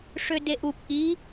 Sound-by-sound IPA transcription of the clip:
ʂødeʔup ʔi

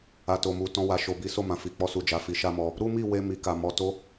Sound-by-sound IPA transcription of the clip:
a˨to˨mu˨ tɔ̃˧wa˨ ʃo˨bi˨˦ so˦˨mã˨fi˨ k͡pɔ˧su˨d͡ʒa˨ fi˨˦ʃa˦mɔ˧ | ɾu˦mi˦˨ we˧ mi˨ka˨ mɔ˨ to˧

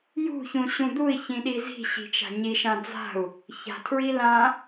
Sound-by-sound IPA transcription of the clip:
jṳçũɕũ d̪ui̯çĩɗi zi̤ɕi̤t͡ʃa̤ ɲiʃã d͡za̤u̯ | ça̤tʰɹi lã

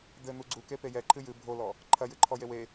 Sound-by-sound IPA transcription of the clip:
d̪ɘ n̪uɡ͡ǀuke pejɛǃʰɨ jɨ bʱolɔ | ǃʰɐjɨǃʰɔ jewe

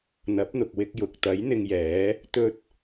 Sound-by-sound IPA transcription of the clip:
n̪ɐ˨˥p̚n̪ʊ˨k̚wɪ˧k̚ jʊ˨k̚t̪ɐ˨˥j n̪ɪ˧ŋjɛː˨˥ | t̪ɵ˧t̚

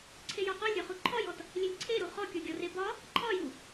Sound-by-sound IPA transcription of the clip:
ǀʰejɒqɔlʲ ɾʲɒχuǃʰɒjɔt | lʲelʲǀʰeɾu χɔkʲɔɡʲɒre bɒ | ǃʰɒju

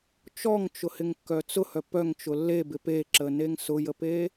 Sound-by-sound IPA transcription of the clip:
t͡ʃɔŋt͡ʃʊhɪŋkːœ t͡sʊhœ pœŋt͡ʃʊ lːebɪ peǁəneŋ sʊjəpe

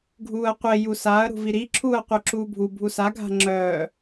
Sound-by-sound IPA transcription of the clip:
ɡʱuːɐ̯qʷe jusaɐ̯ ɾṳviɾi ǁʰuːɐ̯qʷœǁuːbʱu bʱusa ɡʱa̤ŋ͡ǁœː

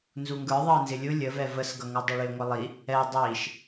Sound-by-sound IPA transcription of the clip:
nzuŋɡə˞ ðˤəːnzɪlʲʊ lʲəvɛ vəsɡʌŋu dˤiɭɪːŋʷɪlˠi | ɛ dˤiːʃ

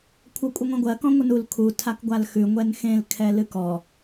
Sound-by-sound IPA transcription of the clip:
kʷʰɜkʷʼəŋʷãɡʷɜ kɔ̃ŋʷənul kʰu tʰakɡʷalxʉ ŋʷɛnxẽlkʰɛ lɨkɔ

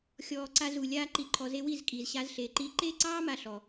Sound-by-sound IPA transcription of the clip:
xʲɔː˨ ǀa˧zu˨ lʲaː˦ǃi˧ǃʰɔ˧ze˦ wi˦˨zkʼiː˨zɕa˧z ɬe˨ǃi˧ ǃe˦ǀɑː˦ ma˦˨ɬɔ˨

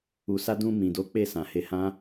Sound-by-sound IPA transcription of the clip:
u˨sa˧dũ˧ mĩ˨do˨˦ k͡pe˦˨ sã˨he˧ hã˦

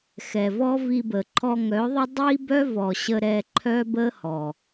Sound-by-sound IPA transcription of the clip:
xɛ˨vɔ˦vi˧bə˨ ǃʰɔ˧ŋœ˨˦ðˤə˦ dˤi˦bœ˦vɔ˨ɕə˧ ɾɛ˧ǃʰœ˦ bə˦hɔ˨

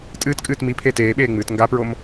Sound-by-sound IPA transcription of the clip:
tʼɨːtkʼɨːt mipʰeːt eːɓeːŋ͡mɨːt ŋɡapɹom

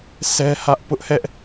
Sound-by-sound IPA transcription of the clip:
sɛ˦hä˦ʔ pʊ˦ʔhɛ˦ʔ

